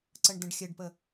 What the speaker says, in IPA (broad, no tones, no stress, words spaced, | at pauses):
ǀəɳdə̃ɖxʲɘɖpə